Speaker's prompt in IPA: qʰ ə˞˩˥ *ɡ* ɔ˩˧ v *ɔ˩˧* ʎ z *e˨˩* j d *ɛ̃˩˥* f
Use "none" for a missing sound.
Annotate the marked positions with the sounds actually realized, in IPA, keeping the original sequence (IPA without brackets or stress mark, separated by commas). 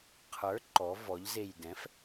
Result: ǃ, ɔ˩˧, e˨˩, ɛ̃˩˥